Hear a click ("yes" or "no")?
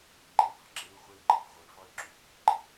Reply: yes